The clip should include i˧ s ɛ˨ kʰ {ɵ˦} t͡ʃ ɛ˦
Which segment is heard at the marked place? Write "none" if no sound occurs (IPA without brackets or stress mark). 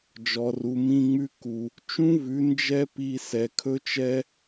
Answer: ɵ˦